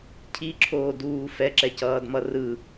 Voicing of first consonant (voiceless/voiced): voiceless